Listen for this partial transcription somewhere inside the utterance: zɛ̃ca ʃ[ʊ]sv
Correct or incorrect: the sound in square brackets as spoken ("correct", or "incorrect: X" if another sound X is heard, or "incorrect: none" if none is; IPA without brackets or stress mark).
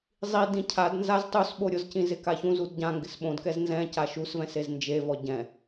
incorrect: u